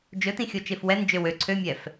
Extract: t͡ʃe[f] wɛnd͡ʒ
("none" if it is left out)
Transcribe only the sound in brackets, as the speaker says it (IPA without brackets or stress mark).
f